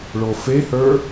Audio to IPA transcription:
ɭofehə˞

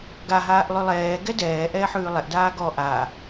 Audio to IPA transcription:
ɡa ɦaːʔlˠʉlˠɛː ɡɛdɛː ʔɛːħʉːlˠɛʔ daːɡɔ ʔa

